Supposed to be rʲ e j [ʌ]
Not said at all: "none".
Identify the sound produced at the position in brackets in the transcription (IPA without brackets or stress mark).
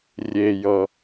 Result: ʌ